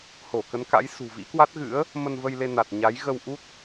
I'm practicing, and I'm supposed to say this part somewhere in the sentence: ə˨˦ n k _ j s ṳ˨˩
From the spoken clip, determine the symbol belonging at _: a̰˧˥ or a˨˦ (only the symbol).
a̰˧˥